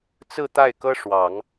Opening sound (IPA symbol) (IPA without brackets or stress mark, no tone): t͡s